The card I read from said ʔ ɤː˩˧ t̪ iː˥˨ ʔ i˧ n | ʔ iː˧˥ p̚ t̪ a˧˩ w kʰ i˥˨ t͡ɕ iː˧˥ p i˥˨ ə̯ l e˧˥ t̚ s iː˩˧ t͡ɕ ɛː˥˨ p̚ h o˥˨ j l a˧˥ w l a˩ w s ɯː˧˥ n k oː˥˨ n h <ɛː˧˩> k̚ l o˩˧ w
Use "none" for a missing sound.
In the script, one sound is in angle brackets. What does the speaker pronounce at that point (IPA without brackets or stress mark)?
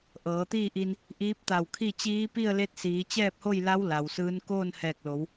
ɛː˧˩